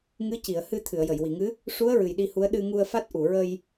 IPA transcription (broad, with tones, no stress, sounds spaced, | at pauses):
ŋ ɨ˧˥ c i˨˩˨ ə̯ h ɨ˧ t̪ʰ ɨ˨˩˨ ə̯ j ə˨˩˨ j w i˨˩˨ ŋ ɨ˧˥ | ʂ u˧˥ ə̯ ɹ ɨ˨˩ j ɗ i˧ h u˧˥ ə̯ ɗ ɨ˧ ŋ u˧ ə̯ f a˦˥ t̚ ʔ u˨˩˨ ɹ ə˧ j